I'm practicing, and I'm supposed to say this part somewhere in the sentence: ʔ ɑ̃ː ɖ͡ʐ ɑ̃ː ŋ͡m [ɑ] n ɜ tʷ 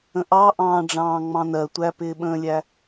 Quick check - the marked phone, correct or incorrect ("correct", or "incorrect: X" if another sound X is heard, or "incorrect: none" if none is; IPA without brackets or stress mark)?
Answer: incorrect: ɑ̃